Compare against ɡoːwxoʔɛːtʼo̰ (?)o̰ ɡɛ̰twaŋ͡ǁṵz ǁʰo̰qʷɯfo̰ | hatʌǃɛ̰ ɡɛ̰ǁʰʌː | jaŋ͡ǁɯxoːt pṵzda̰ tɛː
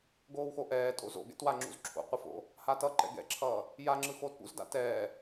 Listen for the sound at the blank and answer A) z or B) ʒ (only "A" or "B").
A